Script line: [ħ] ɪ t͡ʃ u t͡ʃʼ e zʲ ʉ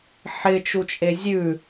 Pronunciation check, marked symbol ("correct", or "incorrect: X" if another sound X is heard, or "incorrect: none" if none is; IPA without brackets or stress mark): correct